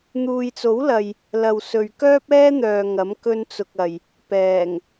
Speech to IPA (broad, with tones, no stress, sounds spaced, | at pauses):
n̪ uː˨ j t͡s o˨˥ w l ɐ˨ j | l ɐ˧ w s ɵ˨ ɥ k œː˥ p̚ ɛː˥ n̪ œː˨ ŋ ɐ˨˥ m k ɵ˥ n t͡s ʊ˧ k̚ ɐ˨ j | p ɛː˨˩ ŋ